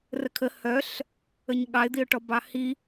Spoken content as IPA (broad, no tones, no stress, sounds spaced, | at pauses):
r ə kʰ ə h œ ɬ | ə ɲ ɠ ɑ ɪ̯ d̪ i ʊ̯ ʈ ɔ b ɑ h i